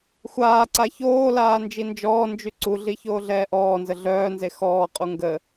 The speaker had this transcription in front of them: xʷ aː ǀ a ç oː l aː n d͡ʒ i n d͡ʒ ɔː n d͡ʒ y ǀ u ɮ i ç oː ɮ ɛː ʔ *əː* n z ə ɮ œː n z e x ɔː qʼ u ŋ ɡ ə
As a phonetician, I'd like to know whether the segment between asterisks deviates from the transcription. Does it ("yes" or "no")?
yes